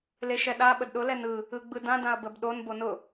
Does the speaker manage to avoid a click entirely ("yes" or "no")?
yes